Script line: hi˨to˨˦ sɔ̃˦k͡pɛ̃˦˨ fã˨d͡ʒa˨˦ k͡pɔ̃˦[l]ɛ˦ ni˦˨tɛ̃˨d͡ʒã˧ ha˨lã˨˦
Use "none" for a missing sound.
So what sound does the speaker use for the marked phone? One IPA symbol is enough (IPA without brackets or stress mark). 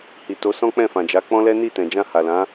l